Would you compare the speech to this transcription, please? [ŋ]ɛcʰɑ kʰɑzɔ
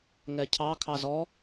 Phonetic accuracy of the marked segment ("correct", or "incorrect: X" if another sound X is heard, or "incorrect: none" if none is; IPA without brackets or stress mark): correct